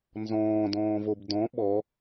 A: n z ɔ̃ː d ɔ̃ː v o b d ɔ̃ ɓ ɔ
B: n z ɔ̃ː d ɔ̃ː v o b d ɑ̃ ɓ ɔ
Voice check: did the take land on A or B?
A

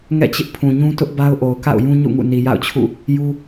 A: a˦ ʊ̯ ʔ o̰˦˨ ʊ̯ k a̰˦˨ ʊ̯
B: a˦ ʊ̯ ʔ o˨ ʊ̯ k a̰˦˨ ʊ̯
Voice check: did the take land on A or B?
B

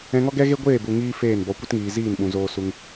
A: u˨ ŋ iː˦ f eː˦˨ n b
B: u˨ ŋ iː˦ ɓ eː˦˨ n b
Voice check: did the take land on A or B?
A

